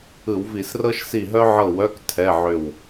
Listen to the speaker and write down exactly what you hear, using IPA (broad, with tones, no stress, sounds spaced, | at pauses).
ɯ˧˩˧ w v i˧˩˧ s r ɤ˥ ʃ s i˦˨ ɦ œ˥ ʕ ɤ˦˨ w œ˧˥˧ k tʰ ɛ˧˥˧ ʕ ʏ˦˨ w